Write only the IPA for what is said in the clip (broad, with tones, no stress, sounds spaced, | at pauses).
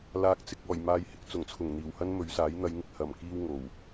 l aː˨ k̚ t͡s ɪ˨ k̚ ɔː˨˩ j m aː˨˧ j h ɪ˨ k̚ t͡s ʊ˨˩ ŋ t͡sʰ ʊ˨˩ ŋ n̪ iː˨˩ w h ɐ˥ n m ɵ˨˧ ɥ s aː˨˥ j n̪ ɐ˨˧ j ŋ ɪ˨ k̚ h ɐ˨˩ m k iː˧ w ŋ o˨˩ w